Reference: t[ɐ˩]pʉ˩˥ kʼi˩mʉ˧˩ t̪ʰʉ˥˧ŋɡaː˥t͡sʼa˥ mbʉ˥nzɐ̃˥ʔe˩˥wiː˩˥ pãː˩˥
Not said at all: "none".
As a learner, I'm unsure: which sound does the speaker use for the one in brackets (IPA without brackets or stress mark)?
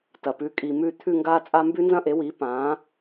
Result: ɐ˩